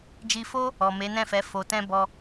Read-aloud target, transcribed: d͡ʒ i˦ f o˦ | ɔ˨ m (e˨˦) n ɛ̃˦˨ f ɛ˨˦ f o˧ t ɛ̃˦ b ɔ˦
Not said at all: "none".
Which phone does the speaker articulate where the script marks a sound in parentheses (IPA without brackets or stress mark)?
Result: e˨˦